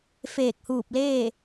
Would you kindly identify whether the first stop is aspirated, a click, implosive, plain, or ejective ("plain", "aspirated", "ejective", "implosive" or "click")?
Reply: plain